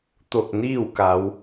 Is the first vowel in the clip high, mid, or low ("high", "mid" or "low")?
mid